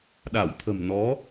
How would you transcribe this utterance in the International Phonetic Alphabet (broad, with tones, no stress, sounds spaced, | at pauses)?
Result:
ɗ a˧˩ w t̪ʰ ə̤˨˩ m n ɔ˨˦